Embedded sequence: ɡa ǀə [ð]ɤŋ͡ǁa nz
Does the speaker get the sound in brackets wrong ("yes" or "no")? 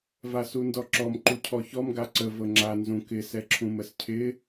yes